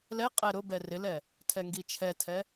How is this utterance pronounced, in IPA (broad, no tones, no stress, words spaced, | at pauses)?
lɛ qʼɛɾʊ bɛrɪlɛ | tʰɛŋɡit͡ʃʰɛtʰɛ